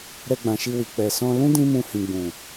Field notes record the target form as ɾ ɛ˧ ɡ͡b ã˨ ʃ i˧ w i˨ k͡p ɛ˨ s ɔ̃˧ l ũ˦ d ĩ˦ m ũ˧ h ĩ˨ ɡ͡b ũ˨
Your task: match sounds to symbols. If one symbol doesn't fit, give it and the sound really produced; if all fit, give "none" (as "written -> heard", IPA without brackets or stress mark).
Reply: none